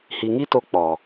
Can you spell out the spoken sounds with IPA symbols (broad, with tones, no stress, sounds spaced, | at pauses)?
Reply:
h i˨ ŋ i˦ t o˧ k͡p ɔ˨